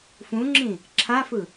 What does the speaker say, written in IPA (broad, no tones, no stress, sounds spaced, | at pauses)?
f ũ ŋ͡ǁ ĩ | ǁʰ a f ɯ